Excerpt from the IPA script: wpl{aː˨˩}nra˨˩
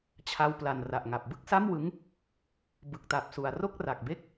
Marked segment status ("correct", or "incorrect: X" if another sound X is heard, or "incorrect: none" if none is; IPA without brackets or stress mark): incorrect: a˨˩